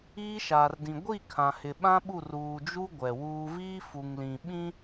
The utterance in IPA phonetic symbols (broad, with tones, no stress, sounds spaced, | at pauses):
iː˦ ʃ aː˨ r d ĩ˨ ɡʷ i˦˨ kʰ ã˨ h ɪ˨ ɓ ã˦ ɓ u˦˨ r uː˨ d͡ʒ u˦ ɡʷ ɛ˨ w uː˦ v iː˦ f u˨ ŋ l ĩ˨ ɓ ĩ˦